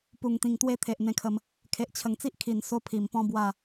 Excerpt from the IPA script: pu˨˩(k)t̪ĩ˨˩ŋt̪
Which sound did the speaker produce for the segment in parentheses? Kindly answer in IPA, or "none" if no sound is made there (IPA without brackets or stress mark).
ŋ